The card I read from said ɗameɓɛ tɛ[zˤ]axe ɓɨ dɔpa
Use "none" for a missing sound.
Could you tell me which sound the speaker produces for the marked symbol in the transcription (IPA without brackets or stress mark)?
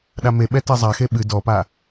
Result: zˤ